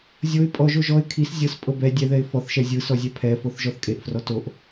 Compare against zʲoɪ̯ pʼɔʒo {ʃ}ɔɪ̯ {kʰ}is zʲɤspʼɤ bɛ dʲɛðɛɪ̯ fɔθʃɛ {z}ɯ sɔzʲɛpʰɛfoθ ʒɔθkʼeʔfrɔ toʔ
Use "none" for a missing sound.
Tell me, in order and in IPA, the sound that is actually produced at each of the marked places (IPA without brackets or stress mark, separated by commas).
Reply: ʒ, kʰ, zʲ